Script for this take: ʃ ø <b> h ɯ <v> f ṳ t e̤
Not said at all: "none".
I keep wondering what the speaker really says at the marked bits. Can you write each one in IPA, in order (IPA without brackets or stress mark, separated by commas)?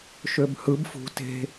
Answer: b, b